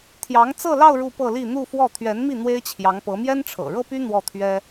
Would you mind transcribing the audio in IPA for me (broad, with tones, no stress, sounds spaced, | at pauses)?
t̪ʰ j ɑ˧˥ ŋ t͡s ɤ˥˧ l ɑ˥˧ ʊ̯ ɻ u˥˧ p ɤ˥˧ l i˥˧ n̪ u˥˧ f w ɔ˥˩ t̪ʰ ɥ ɛ˧˥ n m i˥˩ n̪ w e˥ ɪ̯ t͡ɕʰ j ɑ˧˥ ŋ p ɤ˧˥ m j ɛ˥ n ʈ͡ʂʰ ɤ̰˨˩ ɻ ɤ˥ p y˥ n̪ w ɔ˥˩ t̪ʰ ɥ ɛ˥